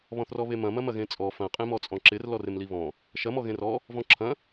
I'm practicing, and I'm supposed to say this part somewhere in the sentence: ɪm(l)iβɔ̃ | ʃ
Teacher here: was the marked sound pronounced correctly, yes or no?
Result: yes